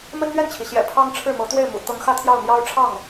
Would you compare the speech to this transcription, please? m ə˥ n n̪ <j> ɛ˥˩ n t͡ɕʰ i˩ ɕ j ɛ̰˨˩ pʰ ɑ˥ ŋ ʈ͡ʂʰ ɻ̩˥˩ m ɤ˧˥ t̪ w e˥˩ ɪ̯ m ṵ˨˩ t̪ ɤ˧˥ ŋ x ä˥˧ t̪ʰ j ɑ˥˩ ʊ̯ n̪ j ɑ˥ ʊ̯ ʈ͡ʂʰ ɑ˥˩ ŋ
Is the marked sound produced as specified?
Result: no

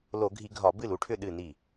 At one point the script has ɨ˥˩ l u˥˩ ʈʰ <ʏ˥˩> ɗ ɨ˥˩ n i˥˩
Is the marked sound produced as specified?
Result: yes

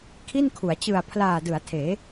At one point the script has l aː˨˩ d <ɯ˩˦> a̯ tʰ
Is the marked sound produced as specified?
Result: yes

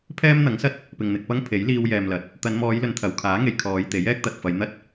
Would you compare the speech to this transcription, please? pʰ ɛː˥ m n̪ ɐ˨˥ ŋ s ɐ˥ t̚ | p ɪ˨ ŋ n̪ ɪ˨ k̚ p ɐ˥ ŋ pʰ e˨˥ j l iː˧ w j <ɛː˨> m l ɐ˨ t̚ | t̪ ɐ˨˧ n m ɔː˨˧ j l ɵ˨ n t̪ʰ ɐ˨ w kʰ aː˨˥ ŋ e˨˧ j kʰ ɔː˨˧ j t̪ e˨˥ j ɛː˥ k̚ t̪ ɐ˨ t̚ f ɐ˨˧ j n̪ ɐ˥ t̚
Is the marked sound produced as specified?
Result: yes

